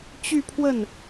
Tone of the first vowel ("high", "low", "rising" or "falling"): falling